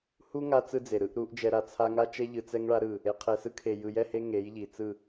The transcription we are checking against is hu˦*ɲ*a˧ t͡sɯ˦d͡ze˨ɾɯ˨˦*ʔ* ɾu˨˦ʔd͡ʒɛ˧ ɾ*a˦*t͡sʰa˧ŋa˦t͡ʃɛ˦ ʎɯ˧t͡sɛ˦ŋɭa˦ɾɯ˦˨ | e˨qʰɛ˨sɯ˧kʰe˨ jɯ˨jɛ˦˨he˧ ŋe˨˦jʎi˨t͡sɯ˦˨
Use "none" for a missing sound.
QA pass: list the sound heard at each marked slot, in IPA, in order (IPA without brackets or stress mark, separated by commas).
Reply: ŋ, ʔ, a˨